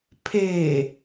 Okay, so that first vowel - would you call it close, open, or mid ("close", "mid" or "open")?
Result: mid